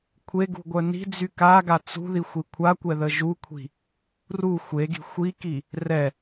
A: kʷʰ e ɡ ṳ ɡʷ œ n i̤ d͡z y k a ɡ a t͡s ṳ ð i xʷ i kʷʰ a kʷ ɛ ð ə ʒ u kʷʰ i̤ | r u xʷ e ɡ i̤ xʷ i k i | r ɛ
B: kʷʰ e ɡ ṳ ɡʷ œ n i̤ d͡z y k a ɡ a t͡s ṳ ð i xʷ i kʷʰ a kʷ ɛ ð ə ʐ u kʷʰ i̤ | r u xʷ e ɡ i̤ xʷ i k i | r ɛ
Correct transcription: A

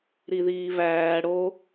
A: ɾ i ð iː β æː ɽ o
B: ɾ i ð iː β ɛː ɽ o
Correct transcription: A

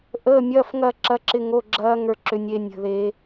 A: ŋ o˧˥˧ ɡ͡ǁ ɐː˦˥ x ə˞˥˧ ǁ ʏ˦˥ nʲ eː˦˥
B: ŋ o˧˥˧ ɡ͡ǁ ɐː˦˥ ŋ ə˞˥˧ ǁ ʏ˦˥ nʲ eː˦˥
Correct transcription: B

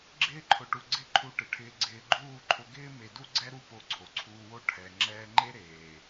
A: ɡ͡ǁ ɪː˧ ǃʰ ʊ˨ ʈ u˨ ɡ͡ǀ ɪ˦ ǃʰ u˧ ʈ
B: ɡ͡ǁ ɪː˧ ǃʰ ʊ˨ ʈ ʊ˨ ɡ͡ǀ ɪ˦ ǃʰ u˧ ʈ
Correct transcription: A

